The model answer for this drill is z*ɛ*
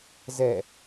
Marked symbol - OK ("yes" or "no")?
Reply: yes